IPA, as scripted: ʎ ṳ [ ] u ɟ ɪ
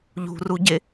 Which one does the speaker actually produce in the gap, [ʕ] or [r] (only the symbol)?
r